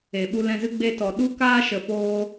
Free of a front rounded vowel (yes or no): yes